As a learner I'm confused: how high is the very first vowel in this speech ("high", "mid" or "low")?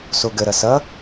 mid